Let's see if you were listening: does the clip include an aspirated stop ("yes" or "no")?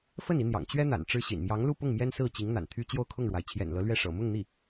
yes